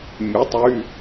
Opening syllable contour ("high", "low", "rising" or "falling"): rising